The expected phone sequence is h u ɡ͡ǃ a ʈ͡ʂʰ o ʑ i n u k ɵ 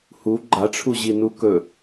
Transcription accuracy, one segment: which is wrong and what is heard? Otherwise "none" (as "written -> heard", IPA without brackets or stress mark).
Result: o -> u